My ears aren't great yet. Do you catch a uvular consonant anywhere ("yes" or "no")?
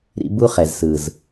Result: yes